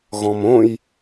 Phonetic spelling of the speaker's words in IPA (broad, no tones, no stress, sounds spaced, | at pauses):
ɣ ɔ̃ m õ j